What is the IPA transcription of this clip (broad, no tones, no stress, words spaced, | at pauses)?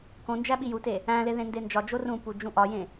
kõnd͡ʒæ ɓijute | æ̃le ðẽndend͡ʒɒd͡ʒo rũ pud͡ʒũʔɒjẽ